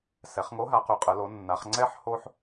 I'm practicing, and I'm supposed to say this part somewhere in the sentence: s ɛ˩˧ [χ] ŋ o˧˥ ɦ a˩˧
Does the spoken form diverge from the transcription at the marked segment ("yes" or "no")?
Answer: no